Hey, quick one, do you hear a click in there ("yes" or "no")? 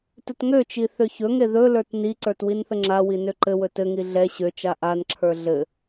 yes